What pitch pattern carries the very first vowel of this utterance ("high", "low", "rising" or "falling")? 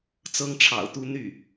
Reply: high